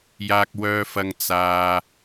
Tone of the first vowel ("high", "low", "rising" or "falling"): low